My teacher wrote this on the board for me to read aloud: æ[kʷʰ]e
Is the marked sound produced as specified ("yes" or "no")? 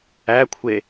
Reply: yes